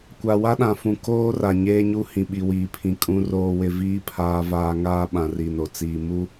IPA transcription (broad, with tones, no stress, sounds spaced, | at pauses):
kʷ a˨ w a˦ ɗ ã˨ f ũ˨ k oː˦ r a˨ ɲ eː˦ ɲ u˦ h ĩ˨ ɓ i˨ w iː˨ pʰ ĩ˨ kʼ ũ˦ r oː˦ w ɪ˦ v iː˦ pʰ aː˦ v aː˦ ŋ aː˦ ɓ ã˨ r i˨ n o˨ t͡s iː˨ m u˦